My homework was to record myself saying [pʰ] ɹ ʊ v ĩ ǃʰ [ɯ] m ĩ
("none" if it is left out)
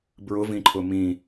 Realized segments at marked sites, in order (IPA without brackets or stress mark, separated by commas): b, ʊ